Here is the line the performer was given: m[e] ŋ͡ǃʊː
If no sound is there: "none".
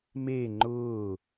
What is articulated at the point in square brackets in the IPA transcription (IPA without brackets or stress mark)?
e